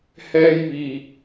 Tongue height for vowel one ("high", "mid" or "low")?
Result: mid